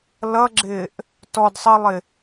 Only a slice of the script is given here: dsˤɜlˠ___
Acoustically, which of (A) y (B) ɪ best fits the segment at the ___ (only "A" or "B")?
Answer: B